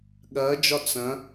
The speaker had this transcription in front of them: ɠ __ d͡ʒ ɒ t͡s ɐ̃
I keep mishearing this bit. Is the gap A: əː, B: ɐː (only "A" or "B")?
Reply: B